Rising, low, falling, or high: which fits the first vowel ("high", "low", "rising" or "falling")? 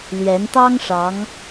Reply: rising